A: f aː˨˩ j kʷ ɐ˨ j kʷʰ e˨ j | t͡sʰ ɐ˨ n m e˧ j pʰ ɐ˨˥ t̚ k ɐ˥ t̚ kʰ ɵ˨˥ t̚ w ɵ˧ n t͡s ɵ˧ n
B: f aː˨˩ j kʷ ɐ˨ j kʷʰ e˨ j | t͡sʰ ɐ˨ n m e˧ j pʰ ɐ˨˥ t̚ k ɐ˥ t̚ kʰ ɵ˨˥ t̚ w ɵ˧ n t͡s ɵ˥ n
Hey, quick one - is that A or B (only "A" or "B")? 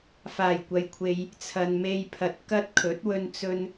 A